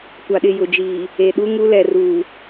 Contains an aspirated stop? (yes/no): no